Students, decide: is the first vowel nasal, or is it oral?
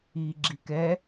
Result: oral